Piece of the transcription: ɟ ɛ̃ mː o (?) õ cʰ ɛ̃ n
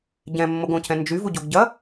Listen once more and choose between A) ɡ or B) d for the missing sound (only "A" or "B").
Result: A